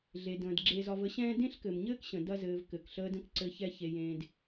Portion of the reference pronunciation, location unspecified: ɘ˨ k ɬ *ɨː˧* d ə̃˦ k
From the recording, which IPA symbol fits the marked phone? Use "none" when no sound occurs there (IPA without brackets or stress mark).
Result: əː˧